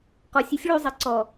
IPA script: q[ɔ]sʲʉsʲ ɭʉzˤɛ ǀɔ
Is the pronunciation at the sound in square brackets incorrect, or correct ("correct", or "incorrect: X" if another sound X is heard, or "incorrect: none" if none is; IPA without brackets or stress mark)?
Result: correct